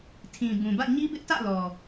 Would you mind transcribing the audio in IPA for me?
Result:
tʰ ĩ˨ b ũ˨ b ä̰˦˨ ɲ i˦ b ɪ˦ ʔ t ä̰˦˨ l ɔ˨

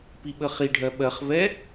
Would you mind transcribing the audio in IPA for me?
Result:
p i ɓ ə χ i ɖʱ ɜ ɓ ɜ χ v ɛ

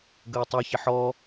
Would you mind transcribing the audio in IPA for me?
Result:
ɡ əː tˤ ɐ ç ɪ ħ ɔ

